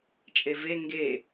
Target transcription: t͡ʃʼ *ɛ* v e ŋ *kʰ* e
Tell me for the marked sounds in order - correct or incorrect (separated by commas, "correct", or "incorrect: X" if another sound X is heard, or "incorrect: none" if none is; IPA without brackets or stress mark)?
incorrect: e, incorrect: ɡ